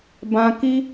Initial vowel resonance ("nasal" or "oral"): nasal